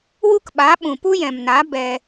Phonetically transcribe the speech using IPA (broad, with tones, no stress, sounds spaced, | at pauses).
w u˦ k ɓ a˨˦ ɓ ũ˨ p u˦ j ɛ̃˨ m n a˨˦ b ɛ˧